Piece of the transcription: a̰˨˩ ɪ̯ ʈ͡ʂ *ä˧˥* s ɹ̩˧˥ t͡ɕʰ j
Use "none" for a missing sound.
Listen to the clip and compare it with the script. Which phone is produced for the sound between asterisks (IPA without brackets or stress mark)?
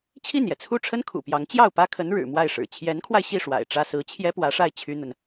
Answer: ä˥